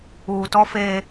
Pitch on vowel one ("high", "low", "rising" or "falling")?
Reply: low